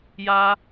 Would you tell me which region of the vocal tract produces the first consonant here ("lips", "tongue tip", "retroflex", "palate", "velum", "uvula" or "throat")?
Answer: palate